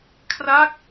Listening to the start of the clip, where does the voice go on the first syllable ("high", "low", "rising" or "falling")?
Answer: falling